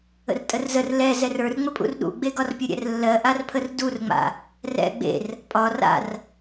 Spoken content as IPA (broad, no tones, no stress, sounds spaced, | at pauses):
ə̰ r tʼ ə r z ə r l ɛ z ɛ r ə˞ r ŋ͡m ə pʼ ṵ r ɗ ṵ ɡ͡b e ɡ ɒ r pʲ ə ɾʲ ɛ̰ r lː ɜ ʔ a r pʰ ə r d u r ŋ͡m a̰ | r ɛ̰ ɡ͡b ḛ r | pʼ ɒ r a̰ r